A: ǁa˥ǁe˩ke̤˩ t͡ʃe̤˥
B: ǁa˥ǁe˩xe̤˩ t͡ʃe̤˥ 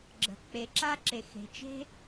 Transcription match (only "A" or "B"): B